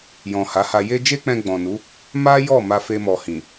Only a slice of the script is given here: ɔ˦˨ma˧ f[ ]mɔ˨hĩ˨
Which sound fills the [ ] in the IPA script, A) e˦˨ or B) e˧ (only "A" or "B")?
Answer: B